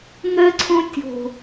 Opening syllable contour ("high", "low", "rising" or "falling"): high